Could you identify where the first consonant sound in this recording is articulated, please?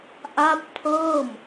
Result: glottal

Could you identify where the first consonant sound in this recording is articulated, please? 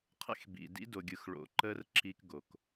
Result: uvular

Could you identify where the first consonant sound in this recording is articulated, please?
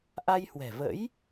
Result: glottal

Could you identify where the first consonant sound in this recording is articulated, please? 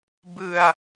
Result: labial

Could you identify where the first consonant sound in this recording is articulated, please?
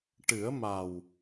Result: retroflex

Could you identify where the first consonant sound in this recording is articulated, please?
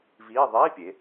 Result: labial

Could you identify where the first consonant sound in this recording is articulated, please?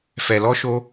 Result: labial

